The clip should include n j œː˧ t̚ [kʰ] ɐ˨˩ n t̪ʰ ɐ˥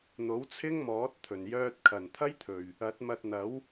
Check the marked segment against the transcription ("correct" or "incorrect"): correct